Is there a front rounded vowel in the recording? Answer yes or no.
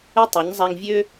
yes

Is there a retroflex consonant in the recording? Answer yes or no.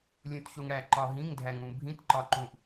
yes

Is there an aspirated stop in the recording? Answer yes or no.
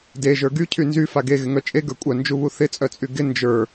yes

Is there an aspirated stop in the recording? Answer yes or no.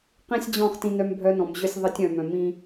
no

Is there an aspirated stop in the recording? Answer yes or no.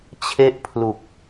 yes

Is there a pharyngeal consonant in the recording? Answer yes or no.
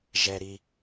no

